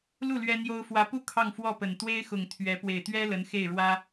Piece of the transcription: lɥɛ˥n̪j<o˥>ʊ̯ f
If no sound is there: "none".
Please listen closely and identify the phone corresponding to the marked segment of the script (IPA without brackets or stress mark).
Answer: o˥